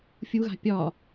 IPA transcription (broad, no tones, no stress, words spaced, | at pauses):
fʲuɣa̤ pʲɒ